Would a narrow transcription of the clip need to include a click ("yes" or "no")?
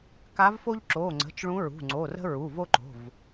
yes